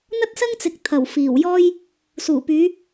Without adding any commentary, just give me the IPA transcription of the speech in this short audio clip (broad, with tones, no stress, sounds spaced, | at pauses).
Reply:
n̪ ɐ˥ t̚ s ɐ˥ ŋ t͡s ɪ˨ k̚ t̪ʰ ɐ˨˩ w f iː˨˩ w j ɔː˥ j | s uː˨˩ p yː˨˧